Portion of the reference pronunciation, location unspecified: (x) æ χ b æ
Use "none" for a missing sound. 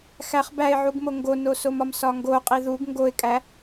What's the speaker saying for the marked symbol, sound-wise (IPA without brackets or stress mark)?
x